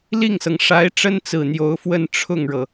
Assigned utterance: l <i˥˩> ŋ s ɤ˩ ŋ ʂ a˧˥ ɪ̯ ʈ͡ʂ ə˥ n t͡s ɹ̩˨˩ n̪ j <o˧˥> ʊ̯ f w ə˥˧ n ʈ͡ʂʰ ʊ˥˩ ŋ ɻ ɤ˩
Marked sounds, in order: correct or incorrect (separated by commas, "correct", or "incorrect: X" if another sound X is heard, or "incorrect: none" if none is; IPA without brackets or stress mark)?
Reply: correct, correct